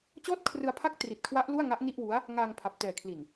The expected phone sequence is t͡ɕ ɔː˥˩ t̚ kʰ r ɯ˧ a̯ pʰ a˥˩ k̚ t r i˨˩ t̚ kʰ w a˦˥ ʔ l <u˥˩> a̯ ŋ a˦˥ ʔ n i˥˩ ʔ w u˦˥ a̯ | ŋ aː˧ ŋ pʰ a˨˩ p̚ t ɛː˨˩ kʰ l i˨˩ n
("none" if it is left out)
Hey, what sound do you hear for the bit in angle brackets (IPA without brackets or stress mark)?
u˥˩